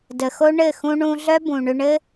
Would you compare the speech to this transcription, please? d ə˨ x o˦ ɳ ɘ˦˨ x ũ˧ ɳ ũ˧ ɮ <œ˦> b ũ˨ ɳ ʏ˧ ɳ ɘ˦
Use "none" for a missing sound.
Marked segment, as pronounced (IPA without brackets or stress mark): œ˦